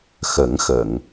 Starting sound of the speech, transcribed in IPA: x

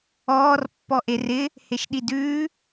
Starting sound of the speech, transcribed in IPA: ɔː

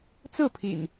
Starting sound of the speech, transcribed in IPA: t͡s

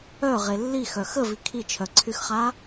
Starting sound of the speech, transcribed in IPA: œ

